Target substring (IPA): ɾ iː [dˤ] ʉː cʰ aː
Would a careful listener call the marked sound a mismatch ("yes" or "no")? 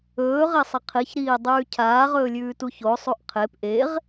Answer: no